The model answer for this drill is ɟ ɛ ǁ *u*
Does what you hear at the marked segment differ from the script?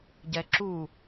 no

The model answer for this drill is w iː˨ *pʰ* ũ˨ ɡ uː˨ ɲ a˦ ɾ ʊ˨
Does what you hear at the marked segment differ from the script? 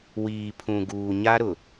no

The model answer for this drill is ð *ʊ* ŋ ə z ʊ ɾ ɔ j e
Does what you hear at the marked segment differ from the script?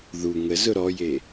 yes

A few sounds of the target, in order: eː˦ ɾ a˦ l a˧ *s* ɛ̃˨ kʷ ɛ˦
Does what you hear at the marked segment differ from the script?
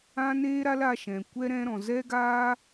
yes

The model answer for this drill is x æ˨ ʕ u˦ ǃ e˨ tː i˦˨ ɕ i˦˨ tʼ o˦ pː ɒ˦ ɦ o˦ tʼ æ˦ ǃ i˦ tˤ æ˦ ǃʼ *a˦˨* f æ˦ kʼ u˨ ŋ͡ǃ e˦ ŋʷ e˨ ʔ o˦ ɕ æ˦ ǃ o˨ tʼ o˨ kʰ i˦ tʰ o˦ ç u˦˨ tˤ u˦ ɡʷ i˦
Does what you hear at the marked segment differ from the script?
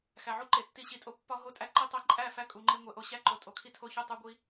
yes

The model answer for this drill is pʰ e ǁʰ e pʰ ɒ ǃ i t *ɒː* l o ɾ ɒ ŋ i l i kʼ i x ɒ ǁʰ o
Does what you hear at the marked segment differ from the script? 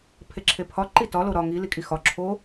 yes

